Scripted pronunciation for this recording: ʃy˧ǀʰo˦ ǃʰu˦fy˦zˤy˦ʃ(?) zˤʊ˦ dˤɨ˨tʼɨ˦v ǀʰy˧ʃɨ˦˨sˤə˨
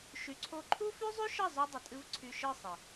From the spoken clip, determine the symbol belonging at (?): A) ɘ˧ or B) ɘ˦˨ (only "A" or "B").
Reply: B